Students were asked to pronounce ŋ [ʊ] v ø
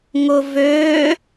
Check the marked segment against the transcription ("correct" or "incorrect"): correct